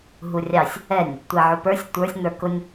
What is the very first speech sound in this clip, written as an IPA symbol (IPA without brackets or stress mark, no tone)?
ɦ